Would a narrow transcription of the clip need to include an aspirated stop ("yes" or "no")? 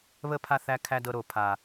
yes